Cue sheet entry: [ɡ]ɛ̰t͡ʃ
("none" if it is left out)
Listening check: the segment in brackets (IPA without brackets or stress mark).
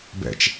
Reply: b